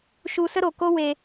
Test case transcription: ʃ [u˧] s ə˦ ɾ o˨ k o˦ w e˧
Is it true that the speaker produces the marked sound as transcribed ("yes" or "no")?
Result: yes